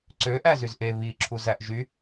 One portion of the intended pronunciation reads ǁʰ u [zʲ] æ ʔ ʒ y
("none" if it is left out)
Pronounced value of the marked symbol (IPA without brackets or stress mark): z